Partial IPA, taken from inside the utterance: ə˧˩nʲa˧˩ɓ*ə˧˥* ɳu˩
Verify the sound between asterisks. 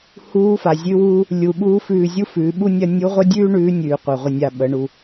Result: incorrect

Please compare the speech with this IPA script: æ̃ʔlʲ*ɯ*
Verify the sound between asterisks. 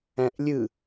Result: correct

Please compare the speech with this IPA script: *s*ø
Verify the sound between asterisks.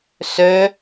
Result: correct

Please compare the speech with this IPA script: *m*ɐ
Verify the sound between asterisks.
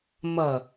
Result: correct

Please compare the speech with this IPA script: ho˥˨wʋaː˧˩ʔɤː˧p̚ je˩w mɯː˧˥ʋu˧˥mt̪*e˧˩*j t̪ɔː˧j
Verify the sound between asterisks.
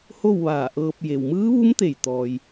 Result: correct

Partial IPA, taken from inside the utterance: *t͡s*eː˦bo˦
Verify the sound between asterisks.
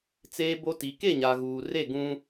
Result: correct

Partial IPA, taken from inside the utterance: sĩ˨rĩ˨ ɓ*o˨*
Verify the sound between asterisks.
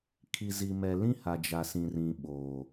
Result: incorrect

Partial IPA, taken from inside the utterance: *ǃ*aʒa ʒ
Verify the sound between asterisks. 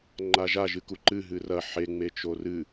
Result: incorrect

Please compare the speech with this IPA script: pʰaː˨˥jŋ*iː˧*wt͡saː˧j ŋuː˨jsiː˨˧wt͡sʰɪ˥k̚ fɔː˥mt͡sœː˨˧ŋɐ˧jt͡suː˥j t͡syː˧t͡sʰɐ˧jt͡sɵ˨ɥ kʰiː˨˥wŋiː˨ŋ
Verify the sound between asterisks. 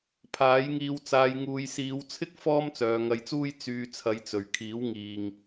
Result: correct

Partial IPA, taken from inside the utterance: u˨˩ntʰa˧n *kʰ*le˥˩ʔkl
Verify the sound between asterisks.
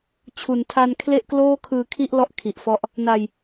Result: correct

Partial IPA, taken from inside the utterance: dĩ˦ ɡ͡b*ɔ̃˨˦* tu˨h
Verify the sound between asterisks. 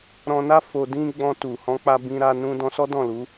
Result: incorrect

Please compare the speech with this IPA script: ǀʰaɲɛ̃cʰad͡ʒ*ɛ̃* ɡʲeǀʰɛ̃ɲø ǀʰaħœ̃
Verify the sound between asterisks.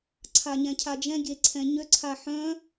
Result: correct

